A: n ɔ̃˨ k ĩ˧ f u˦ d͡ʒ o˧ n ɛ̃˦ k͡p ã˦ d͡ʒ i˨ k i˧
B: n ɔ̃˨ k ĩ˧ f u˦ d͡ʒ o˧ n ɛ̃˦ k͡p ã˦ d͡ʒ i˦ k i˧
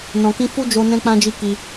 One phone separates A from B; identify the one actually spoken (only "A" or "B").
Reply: B